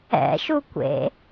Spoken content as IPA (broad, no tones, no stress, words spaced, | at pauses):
ɛ̰ʃukʷḛ